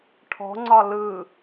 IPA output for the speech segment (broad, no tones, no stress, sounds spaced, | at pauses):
ʈʰ ɔ̤ ŋ͡ǀ ɒ l ɯ